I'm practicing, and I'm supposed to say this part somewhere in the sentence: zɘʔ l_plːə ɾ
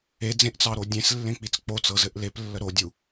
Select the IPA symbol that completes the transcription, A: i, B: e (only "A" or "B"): B